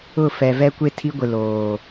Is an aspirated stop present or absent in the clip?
present